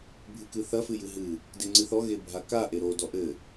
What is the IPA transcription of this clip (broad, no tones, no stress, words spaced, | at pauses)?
bʱɨkɨθɐ fɨjɨɦɨ | deŋ͡ǀɨθɔ ɣebʱaka ʔeɾo dɔʔɘ